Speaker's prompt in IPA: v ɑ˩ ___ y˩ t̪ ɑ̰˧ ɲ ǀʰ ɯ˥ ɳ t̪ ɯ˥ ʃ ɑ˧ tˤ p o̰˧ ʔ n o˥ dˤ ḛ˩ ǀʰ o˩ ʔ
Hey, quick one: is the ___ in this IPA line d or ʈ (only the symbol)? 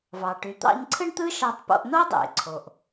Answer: ʈ